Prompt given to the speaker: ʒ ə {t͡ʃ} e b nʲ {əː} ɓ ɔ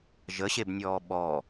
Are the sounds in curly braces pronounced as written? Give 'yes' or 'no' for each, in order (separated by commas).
no, no